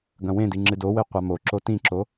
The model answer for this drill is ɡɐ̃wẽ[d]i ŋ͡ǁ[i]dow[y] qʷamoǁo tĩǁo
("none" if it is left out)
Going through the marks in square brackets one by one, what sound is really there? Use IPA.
d, ɨ, e

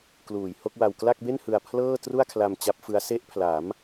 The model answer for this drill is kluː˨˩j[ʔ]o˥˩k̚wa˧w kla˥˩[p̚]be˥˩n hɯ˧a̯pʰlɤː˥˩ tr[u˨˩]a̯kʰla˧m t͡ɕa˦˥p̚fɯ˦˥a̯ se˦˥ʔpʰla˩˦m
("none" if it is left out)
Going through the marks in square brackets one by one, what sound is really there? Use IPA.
h, k̚, u˥˩

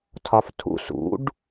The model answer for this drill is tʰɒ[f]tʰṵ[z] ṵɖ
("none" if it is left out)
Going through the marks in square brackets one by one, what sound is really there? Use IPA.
f, s

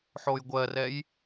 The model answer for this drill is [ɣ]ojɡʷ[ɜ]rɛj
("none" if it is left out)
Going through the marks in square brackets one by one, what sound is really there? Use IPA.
ħ, ɜ

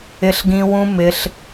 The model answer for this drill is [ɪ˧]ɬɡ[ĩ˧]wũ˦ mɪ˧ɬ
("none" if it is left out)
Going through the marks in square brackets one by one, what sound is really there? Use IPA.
ɪ˧, ĩ˧

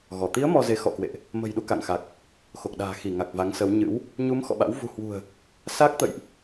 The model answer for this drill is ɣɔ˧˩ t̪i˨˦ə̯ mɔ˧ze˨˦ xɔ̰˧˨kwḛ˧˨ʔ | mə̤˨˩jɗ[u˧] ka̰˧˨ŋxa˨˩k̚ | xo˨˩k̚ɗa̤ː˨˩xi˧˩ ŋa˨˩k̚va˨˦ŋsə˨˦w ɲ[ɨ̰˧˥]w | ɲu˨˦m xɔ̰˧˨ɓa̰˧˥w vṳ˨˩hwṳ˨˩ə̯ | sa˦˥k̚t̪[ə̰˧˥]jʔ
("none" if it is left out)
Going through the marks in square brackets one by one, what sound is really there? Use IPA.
u˧, ɨ̰˧˥, ə̰˧˨

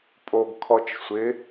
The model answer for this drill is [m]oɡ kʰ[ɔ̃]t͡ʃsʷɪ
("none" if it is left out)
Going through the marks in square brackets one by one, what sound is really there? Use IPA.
pʼ, ɔ

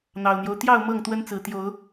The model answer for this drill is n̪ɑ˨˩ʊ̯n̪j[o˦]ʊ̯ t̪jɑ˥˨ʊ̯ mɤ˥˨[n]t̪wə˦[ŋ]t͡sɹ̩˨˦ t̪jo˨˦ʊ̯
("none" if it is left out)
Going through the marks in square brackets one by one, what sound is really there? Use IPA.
o˦, ŋ, n

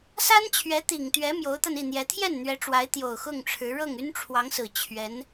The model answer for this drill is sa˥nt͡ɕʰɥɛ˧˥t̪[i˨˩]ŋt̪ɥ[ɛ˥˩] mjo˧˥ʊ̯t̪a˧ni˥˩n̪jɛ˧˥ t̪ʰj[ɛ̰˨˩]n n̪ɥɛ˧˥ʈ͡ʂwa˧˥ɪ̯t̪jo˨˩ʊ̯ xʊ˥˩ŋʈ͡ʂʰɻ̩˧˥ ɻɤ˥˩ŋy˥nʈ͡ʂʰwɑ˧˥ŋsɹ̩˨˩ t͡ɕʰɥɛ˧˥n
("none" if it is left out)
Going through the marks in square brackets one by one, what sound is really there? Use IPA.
i˨˩, ɛ˧˥, ɛ˥˩

